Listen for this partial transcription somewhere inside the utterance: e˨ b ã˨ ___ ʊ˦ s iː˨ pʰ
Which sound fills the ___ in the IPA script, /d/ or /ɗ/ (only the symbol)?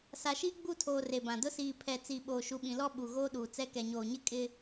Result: d